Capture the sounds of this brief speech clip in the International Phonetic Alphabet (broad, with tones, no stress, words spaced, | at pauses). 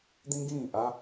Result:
d̪ĩ˦ɡĩ˦˨ʔa˦